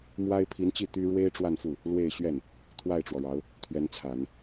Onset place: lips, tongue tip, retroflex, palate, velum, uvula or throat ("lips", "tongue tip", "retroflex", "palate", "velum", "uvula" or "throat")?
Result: lips